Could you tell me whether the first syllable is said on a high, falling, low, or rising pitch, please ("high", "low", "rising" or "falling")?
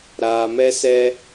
low